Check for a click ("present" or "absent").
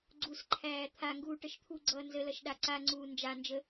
present